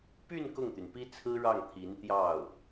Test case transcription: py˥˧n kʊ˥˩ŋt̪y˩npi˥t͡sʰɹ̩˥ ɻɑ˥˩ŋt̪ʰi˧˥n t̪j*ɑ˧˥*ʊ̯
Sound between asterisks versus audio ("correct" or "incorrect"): incorrect